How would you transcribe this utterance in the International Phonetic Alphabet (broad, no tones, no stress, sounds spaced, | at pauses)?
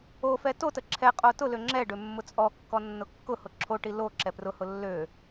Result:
o f ɛ t o t ə ǁʰ ɛ qʼ o t ʊ l ø ŋ͡ǁ ɛ ɖ ø mː ʊ t͡sʼ ɔ kː ɔ nː ʊ kː ʊ h ʊ ǁʰ o ʈ i l o ǁ ɛ p r ʊ h ʊ lː ø